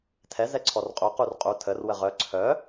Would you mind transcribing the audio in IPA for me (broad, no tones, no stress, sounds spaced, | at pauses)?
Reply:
tʰ ɛ z ɛ ǀʰ ɔ r qʼ u q u r qʼ u tʰ ə r w ə ʁ œ ǀʰ œ